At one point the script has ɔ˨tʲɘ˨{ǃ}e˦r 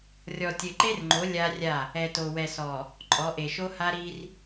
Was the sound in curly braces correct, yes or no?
yes